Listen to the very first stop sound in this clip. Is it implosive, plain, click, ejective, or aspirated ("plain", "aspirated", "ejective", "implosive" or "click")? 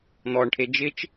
aspirated